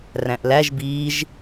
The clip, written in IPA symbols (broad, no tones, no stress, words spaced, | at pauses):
ræ̃ʔlæʒ biːʒ